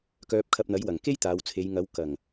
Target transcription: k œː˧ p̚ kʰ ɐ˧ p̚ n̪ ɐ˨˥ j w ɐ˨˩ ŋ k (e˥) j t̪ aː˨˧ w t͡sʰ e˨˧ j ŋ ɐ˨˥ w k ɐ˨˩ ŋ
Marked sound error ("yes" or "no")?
no